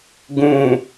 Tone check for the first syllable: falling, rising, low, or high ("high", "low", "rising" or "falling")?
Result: low